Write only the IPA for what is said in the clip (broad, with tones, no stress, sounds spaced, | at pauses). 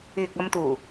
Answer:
yː˨ k̚ ɐ˧ m t̪ uː˨˩